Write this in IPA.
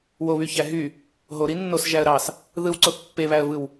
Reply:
woβyçæ ɦy | ɦoɾi nːosʒæə̯ ɾɑs | ðɯwǀoθ pːeβæə̯vɯw

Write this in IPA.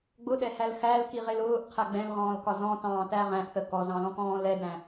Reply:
ɡ͡bʊɗɛhæl xælkiʁɪl ʊːʔqʰæ ɡ͡bɛ̃lʁɔ̃ːlkɒ zɔ̃tɑ̃ːtæ ʁæ̃ʔθə kɔzɑ̃lɔ̃kɔ̃ː lɛdæ̃

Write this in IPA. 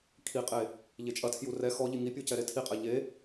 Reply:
kʰiqʼe | ʎet͡ʃʼɐtʰju rɛ xɔʎi ŋipʲu cɛɾetʰiqʼɛ ʎe

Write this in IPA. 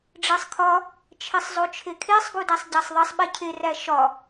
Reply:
ɖ͡ʐesˤkʰɒ | t͡ʃʰesˤzˤot͡ʃʰekʰesˤ ɡudæsˤɟæsˤðˤesˤ ɓecʰe ræʃɒ

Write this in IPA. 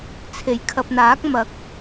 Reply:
t͡sʰe˨˩jkʰɐ˨p̚n̪aː˨˥k̚ mɐ˨˥k̚

